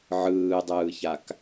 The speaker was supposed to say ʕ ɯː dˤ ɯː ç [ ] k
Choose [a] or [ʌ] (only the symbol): a